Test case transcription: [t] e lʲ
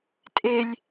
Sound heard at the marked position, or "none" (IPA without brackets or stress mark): tʼ